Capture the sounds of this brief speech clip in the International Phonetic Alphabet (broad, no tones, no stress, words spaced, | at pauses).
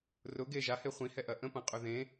rʊ ɡe ʒahe χʷĩhɛʔɐ ʔə̃pɐ̃qʼɵ ðẽ